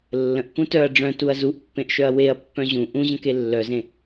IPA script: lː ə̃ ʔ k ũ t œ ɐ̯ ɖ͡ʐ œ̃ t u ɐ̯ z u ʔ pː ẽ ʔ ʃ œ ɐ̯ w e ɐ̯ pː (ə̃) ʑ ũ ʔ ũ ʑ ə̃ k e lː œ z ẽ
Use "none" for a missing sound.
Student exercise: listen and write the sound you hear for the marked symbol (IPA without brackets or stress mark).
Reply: œ̃